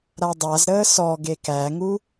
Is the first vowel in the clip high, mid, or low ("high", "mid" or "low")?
low